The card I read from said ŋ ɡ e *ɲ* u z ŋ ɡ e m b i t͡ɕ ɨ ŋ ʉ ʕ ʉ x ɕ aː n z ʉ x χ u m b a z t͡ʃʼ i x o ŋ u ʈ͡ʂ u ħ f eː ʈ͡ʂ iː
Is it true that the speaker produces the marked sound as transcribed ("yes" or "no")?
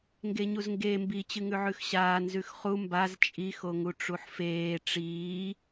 yes